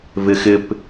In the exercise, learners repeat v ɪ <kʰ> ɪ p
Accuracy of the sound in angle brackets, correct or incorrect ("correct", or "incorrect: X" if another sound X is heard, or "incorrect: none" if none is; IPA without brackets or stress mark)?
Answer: incorrect: x